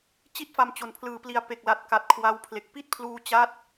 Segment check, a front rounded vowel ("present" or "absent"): absent